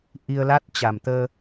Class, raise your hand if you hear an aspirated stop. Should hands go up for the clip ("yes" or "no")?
no